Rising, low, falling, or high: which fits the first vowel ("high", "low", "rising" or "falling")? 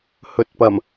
low